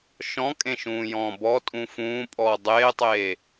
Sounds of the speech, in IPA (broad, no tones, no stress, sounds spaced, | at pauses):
ʃ ɔ̃ kʼ ẽ ʃ ũː j ɔ̃ː b ɔ tʼ ũ f ũː pʼ ɔː dˤ eː tˤ eː